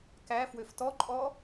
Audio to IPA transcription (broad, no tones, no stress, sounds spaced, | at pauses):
k æ f w ø f t ɔ ǃʼ ɔ